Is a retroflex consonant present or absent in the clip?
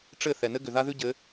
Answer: present